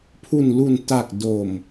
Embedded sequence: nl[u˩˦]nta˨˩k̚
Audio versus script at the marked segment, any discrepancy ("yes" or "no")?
yes